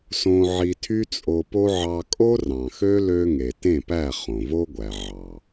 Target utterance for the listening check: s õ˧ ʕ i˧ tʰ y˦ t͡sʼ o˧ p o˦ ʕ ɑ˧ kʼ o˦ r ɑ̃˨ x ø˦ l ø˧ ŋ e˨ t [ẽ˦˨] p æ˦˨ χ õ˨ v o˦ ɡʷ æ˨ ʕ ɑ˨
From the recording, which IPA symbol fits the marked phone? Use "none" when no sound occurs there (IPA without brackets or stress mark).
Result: ẽ˦˨